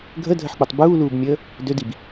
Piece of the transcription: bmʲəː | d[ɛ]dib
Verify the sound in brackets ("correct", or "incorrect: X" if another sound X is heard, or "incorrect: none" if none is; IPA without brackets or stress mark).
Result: incorrect: ø